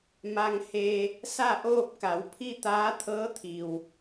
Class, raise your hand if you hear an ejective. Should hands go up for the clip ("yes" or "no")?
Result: no